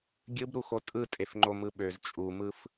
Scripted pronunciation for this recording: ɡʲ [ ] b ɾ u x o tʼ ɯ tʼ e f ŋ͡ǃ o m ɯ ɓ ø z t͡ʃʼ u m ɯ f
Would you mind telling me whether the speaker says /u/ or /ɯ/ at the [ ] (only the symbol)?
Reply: ɯ